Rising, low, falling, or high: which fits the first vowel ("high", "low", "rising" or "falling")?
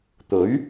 rising